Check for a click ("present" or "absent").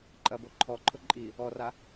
present